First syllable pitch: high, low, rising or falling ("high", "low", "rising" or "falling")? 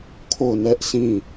falling